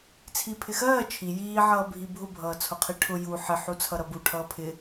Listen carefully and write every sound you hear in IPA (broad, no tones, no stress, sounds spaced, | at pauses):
t͡sʰ i pʰ ɪ x ɜː t͡ʃʰ i j iː ʕ ʌː bʱ i bʱ ʊ bʱ ʌː t͡sʰ ʊ qʰ i ʈʰ ʊ j u ħ ɪ ħ u t͡sʰ ʌ ɾ ʌ b u ʈʰ ʌː pʰ ɪ